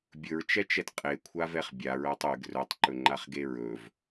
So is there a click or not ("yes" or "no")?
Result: yes